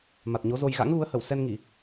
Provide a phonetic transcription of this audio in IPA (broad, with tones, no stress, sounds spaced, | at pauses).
m a˨˩ t̚ ɲ o˨˦ z o˧ j ɣ a̰˧˥ ŋ ɣ u˨˦ ə̯ h ə˧˩ w s ɛ˧ n ŋ i˧˩˨